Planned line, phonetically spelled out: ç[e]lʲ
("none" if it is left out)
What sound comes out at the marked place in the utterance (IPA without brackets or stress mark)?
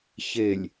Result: e